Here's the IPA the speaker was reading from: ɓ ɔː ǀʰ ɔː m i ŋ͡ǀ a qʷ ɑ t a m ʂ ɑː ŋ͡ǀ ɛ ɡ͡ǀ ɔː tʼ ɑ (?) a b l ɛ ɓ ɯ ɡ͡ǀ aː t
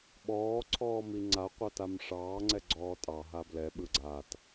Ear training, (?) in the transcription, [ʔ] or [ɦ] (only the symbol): ɦ